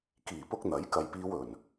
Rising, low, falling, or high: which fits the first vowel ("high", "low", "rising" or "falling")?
low